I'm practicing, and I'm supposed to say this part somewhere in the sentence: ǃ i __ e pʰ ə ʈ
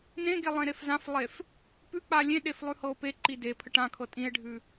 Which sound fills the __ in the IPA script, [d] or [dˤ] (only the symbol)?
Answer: d